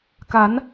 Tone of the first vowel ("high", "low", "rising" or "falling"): rising